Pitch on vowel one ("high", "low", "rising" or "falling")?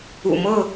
low